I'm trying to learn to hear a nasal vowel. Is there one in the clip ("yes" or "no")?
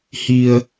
no